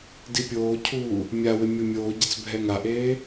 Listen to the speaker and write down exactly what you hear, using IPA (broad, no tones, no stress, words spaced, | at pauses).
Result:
dipʲoːcʰuː | mʲawɪ mʲomʲoːɟɪt͡s bʱɛŋaʔeː